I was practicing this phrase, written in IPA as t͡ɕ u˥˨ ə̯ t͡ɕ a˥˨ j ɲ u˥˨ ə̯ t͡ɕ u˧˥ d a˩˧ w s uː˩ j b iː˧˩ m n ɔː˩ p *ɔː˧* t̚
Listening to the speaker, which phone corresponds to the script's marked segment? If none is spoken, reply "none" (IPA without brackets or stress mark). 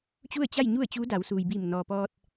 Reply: ɔː˧